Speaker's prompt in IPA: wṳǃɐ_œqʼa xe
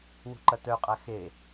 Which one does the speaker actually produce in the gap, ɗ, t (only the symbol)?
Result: t